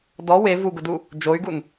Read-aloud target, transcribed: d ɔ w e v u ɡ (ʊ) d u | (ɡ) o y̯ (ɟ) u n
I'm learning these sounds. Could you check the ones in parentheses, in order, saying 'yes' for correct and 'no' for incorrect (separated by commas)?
yes, no, no